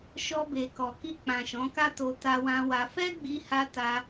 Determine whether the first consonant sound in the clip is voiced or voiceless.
voiceless